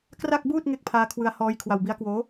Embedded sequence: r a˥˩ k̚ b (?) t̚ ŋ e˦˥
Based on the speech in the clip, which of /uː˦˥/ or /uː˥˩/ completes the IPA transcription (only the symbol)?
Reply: uː˥˩